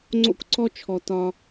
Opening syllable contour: high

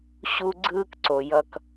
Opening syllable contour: high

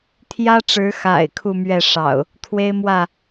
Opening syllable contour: high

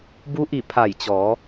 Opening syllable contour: rising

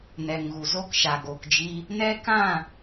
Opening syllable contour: low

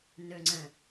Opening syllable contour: low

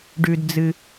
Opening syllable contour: low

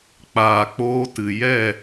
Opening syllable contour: low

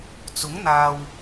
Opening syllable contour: rising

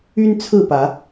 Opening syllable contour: high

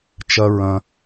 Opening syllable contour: high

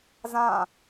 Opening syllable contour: falling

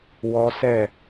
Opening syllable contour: high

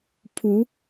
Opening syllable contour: rising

